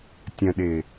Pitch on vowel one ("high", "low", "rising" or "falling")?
low